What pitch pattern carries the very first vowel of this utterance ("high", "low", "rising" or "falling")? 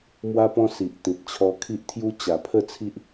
high